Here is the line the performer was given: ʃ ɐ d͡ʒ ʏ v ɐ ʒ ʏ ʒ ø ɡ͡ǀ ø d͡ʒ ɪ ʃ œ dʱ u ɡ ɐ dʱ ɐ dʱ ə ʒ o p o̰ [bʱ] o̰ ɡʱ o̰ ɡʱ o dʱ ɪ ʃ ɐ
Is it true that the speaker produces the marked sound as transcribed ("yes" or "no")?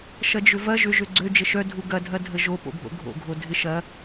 yes